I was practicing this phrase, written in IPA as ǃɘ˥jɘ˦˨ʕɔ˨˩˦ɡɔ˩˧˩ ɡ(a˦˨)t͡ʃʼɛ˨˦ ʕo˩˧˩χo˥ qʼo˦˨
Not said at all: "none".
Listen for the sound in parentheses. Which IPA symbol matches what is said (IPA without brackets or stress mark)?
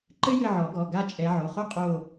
a˦˨